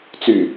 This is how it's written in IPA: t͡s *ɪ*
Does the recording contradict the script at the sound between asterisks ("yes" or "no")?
yes